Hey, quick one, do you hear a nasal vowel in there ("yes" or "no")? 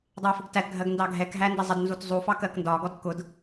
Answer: no